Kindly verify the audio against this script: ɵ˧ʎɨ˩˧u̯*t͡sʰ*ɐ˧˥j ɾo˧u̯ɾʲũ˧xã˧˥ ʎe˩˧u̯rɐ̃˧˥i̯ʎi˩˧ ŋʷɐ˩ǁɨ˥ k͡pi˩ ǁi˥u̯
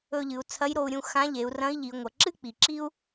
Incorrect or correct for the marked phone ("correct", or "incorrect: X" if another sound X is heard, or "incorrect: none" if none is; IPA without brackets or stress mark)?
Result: correct